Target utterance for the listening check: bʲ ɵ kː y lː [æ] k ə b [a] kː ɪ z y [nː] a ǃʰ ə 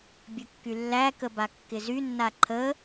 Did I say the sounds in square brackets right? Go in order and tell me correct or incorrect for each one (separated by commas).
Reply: correct, correct, correct